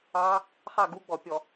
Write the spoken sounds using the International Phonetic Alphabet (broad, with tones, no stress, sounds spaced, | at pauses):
ɑ˦˥ | χ ɑ˥˨ ɡ u˧˥˧ ɡ͡b ɔ˧˩˧ pʲ ɔ˧˩˧